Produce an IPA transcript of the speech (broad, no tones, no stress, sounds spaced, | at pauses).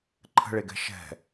ǃʰ ə̤ ɭ e ɡ ɛ̤ ʃ ɛ̤